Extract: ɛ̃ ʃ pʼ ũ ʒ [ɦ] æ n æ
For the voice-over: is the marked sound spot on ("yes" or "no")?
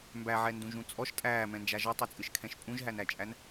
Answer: yes